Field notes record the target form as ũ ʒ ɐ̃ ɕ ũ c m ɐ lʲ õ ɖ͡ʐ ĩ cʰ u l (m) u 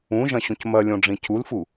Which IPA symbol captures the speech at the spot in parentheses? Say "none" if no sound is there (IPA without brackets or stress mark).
f